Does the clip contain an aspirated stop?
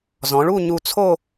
yes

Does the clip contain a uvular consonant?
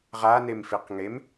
yes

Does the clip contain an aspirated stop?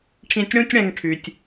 yes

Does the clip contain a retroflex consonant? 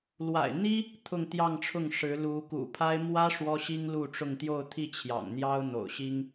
yes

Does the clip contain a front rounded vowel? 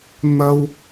no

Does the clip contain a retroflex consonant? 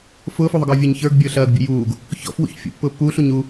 no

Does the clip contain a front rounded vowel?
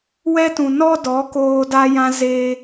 no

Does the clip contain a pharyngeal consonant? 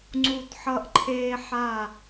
yes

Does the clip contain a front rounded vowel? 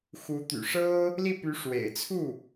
yes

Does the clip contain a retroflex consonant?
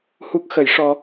yes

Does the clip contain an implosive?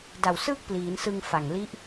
no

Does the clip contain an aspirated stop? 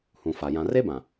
no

